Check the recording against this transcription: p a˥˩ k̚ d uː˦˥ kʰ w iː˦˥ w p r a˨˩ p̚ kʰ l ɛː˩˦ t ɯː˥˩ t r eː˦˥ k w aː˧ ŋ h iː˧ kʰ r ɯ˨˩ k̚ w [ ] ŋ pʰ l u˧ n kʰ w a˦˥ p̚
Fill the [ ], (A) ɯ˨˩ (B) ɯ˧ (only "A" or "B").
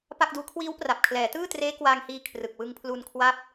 B